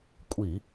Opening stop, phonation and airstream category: ejective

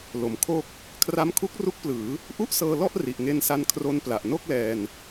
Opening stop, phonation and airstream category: aspirated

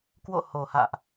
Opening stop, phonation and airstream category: plain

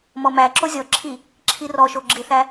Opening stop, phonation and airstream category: click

